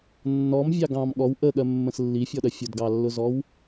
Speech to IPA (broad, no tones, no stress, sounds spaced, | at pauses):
nː ɔ m vʲ ɑ ɡ ɑ̃ m ɠ ɔ w ʔ ə ɠ ɜ mː ə̃ s lː i fʲ ɔ ɗ ɜ fʲ ʊ d ɡ ɑ lː ʊ z ɔ w